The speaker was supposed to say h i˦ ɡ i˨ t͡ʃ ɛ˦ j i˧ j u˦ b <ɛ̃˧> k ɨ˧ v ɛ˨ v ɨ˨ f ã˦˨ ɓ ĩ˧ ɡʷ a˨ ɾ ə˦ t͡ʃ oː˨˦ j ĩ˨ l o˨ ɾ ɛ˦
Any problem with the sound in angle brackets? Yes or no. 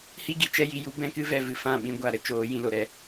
no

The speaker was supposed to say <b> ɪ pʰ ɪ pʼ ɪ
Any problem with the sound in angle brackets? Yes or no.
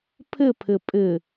yes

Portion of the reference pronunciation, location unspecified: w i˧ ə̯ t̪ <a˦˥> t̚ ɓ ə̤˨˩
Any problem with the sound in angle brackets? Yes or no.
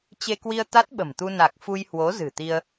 no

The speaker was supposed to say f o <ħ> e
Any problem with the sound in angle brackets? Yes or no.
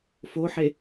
no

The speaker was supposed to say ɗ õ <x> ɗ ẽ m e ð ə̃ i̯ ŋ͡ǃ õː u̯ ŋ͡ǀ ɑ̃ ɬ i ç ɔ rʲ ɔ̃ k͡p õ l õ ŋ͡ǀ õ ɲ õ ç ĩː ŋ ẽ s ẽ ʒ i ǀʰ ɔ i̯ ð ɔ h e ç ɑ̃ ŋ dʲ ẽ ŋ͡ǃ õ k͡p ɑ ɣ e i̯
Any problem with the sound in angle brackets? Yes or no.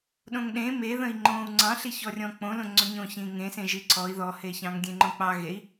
yes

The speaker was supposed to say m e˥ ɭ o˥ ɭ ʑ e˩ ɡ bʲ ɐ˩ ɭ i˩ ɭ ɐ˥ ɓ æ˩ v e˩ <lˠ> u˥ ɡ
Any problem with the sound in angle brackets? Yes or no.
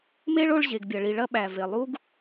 no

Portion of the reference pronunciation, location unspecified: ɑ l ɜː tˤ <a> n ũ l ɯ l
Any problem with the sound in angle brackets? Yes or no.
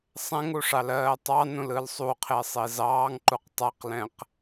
yes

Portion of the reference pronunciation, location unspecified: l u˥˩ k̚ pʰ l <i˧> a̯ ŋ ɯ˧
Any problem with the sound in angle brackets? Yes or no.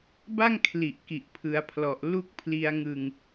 no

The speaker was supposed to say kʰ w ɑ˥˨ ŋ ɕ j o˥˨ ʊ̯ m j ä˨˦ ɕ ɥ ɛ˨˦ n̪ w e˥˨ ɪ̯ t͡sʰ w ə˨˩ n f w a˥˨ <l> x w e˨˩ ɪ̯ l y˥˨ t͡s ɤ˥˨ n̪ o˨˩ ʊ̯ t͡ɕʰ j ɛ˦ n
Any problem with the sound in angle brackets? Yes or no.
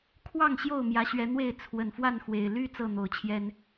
yes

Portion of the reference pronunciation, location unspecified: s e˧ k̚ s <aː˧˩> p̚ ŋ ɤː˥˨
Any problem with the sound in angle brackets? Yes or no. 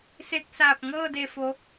no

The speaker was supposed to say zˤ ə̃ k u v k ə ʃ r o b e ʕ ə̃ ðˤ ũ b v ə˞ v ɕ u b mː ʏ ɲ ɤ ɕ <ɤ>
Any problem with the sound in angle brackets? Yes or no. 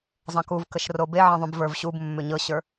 yes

